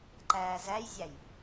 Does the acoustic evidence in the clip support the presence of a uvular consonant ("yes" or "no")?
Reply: no